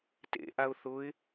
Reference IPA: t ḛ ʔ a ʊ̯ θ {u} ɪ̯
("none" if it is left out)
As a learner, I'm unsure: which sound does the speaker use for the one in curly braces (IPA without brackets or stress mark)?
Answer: ʊ